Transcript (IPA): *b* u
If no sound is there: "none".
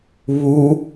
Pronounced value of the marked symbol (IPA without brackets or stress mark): β